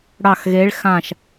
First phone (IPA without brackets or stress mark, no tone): ɽ